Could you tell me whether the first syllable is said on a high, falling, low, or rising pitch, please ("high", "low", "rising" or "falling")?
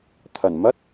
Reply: low